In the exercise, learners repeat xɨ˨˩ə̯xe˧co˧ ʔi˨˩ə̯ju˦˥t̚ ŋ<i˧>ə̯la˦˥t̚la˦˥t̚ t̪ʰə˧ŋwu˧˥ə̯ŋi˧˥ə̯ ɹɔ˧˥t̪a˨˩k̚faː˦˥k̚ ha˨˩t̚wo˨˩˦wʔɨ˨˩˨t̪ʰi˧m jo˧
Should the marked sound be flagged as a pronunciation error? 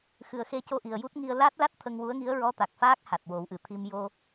no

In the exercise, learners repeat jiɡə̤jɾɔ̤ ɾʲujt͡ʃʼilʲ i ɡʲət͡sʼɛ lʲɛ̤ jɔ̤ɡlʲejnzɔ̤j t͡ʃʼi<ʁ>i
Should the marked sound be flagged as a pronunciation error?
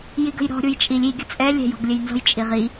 no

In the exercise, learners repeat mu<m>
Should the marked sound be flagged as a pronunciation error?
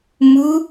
yes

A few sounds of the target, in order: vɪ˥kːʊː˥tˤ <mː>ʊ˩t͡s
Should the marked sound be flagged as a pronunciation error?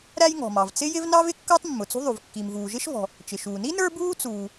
no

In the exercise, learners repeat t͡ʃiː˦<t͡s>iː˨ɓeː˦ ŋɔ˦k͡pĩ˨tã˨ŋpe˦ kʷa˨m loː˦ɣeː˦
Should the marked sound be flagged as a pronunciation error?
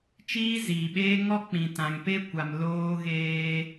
yes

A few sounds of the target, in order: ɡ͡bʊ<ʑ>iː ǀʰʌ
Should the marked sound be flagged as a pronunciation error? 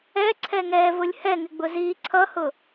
yes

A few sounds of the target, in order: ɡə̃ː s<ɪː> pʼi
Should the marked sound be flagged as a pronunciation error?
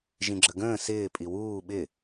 no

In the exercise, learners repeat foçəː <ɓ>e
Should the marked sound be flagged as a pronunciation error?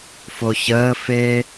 yes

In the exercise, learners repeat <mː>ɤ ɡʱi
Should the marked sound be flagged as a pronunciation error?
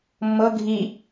no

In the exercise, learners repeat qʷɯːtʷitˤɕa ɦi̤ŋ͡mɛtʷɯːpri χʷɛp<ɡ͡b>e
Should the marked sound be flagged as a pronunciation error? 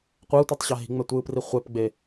no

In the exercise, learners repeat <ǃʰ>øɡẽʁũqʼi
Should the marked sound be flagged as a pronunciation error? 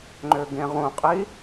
yes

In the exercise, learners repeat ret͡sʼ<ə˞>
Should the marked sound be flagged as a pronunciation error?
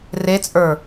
no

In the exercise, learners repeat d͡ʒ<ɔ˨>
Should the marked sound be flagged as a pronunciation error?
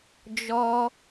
yes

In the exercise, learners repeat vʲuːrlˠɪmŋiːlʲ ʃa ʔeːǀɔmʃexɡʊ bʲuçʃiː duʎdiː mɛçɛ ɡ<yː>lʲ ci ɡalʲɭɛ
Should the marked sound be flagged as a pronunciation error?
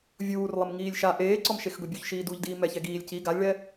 yes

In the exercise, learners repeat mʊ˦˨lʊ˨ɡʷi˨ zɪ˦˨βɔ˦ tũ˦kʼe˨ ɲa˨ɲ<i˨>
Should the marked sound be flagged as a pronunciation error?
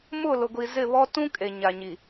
no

